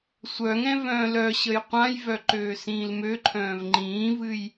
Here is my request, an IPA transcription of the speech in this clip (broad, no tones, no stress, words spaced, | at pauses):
sʷœŋɛ̃ vœ̃ːlœɕəj qʷãjvœ ǃøːsĩːlmøǃʰœ̃ːv ŋ͡ǃĩːvɨj